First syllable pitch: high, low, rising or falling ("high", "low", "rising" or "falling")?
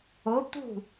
rising